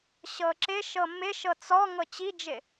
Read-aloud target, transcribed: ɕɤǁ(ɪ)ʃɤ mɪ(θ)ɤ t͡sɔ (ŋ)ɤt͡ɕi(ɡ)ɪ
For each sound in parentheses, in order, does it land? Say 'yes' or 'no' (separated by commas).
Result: yes, no, yes, no